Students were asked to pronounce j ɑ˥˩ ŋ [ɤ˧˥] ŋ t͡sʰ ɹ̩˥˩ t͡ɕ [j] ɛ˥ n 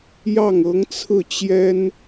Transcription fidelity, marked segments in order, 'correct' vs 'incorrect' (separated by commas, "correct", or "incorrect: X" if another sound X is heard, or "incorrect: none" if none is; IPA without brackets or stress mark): correct, correct